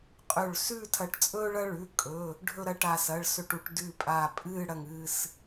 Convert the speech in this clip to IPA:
qʼ ɵ˧˩ ɭ s ʉː˥˧ tʰ ɐ˧˩ ʈ t͡sʼ ɵː˥ ɭ ɐ˥ ɭ ʉ˩˧˩ kʼ ɵ˩˧˩ | ɖʱ ɵ˥˧ ɾ ɐ˥˧ ʈ a˧˩ s ɐː˩˧˩ ɭ s ɵ˧˩ ʈ u˧˩ ʈ d ʉ˧˩ pʼ aː˧˩ pʼ ɨː˥˧ ɽ ɐ˧˩ ŋ ɨː˧˩ s

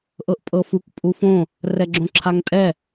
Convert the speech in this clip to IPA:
ʔ ɤ ʔ pʼ ɤ f u k pʼ u f õ | r ɛ ɡ͡ǁ õ ǁʰ a ŋ tʼ ɛ

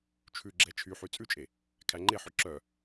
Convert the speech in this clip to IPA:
t͡ʃʰ ʉ ɡ͡ǁ ɛ t͡ʃʰ y ħ y t͡sʼ ʉ t͡ʃʼ e | kʰ æ ŋ͡ǃ e ħ ɵ ǁ œ

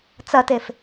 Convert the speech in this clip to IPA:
t͡s ɐ t e f

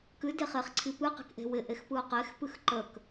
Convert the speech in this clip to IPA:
k ɨ d e χ e χ ǀʰ i p ɨ q e̤ k ʔ e̤ w ɪ ʔ e x p ɯ ʊ̯ q e x p ɨ x ǃ ə k

